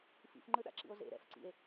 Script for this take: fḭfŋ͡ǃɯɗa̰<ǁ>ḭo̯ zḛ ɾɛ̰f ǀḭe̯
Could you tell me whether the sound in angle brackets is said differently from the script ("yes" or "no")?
no